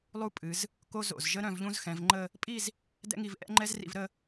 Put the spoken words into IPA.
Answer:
lˠu˥ pʼɨ˩˧z | ko˥ zo̰˧˩zʒə˥ ɾœ̃˥˧vʎũ˥zxɛ̃˩˧vŋ͡ǃə˥˧ | pʼi˥˧z | dɛ̰˥ŋi˧v ʔɛ̰˥ŋ͡ǃɛ˥zrḭ˧v ɾə˥˧

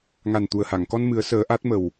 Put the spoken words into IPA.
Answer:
ŋa˨˩nt̪u˨˩ə̯ha˨˩˨ŋkɔ˧n mɨ˨˩˦ə̯səː˨˩˦ ʔa˦˥t̚mə˨˩w

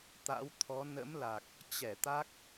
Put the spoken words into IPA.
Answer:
t̪a̰˧˥w t̪ʰɔ˨˦ nə̰˧˥mla˨˩k̚ | t͡ɕɛ˧˩t̪a˦˥k̚

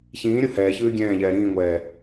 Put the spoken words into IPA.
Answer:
çĩːɾʲu hɛːçʉː ɡʲɛ̃ːʎɛː ɾĩːŋʷɛː

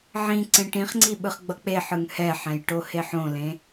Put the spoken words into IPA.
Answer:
ʕĩ ǀẽʈĩχŋ͡ǀi ɓɯχɡ͡bʌk͡peħɯŋ hɛħɛ̃j ʈoheħõlẽ

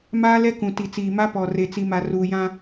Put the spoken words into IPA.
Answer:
maː˦lɛ˦kũ˨ ti˨t͡siː˨ma˦ pɔ˨re˨ t͡si˨ma˨ ruː˨ jã˦

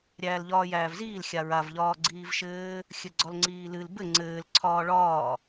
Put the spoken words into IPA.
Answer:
ɾʲæːlʎɒːjæːvziːl xʲaɹav ʎɒːɡ͡ǀiːvʃɘː | xʲɘɡ͡ǀɒlŋ͡ǀiːlɨl bɘ ŋ͡ǀɘːl ǀʰɒːɭɒː

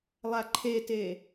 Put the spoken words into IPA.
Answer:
lˠaǃʰete

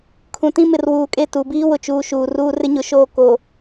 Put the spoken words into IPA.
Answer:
kʰũ˨ tĩ˦mɪ˨rwuː˨kʼe˦˨ tu˨biː˦wʊ˨t͡ʃuː˨ ʃuː˨ruː˦ rɪ˦ɲʊ˨ʃoː˦˨ ko˨

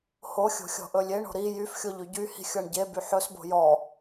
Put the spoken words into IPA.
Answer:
hoxʲo̤ xʲɔ̤ʔɵlʲeɳo̤ ɾi jyfxʲo ʎyɟyhi̤ xʲɔɳɟeby ħɵsbo̤ jɔ

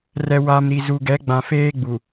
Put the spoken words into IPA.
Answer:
rɛ˨ wa˨m ɾi˨zu˨ɡɛ˨˦ ɡ͡bã˨feː˦ɡ͡bu˨

